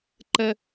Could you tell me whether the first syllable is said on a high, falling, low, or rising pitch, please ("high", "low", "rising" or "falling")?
high